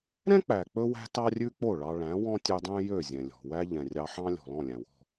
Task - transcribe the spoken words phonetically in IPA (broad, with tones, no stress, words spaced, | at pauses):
ɾɛ̃˥k͡pæ˩ k͡pɵ˥wæ̤˥ tɑ˥rʲʉ˥k͡po˥˩ɭɑ˧ ɭæ̃˩˥wɔ̃˥ tʲø˧dˤæ̃˥ jø˥˩zʲɛ̃˩lʲɔ̤˩wæ˥ ʎɛ̃˩rʲɑ˧ħɑ̃˥lʲɔ̤˩ lɔ̃˥˩lʲæ̃˩wɔ̤˥˩